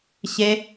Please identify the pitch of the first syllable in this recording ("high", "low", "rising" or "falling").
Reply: high